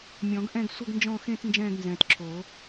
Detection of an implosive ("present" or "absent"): absent